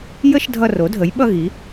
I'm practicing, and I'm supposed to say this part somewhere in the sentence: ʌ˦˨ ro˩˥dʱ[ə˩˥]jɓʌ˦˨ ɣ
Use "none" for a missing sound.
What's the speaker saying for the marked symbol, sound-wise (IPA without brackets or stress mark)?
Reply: ə˩˥